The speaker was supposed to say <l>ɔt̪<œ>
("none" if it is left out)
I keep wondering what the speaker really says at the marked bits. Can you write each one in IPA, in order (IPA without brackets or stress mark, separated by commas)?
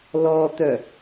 l, œ